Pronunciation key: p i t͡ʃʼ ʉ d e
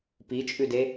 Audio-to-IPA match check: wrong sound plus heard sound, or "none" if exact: none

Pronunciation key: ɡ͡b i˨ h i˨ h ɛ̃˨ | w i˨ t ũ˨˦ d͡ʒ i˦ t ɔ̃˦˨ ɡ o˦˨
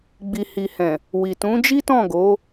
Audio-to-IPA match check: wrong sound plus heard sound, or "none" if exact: o˦˨ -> o˨˦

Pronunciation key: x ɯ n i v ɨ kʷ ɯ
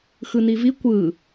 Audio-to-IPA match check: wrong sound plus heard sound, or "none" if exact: ɨ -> i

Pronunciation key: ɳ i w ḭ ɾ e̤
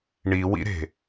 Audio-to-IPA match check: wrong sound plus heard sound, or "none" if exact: none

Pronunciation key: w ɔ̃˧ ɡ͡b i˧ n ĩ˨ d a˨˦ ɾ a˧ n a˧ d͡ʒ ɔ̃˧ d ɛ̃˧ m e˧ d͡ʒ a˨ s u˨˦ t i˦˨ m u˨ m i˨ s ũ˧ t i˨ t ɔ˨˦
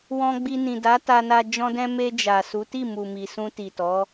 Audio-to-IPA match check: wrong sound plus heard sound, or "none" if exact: ɾ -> t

